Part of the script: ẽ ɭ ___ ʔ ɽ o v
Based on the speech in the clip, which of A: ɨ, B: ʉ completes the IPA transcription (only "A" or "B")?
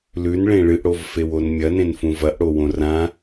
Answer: A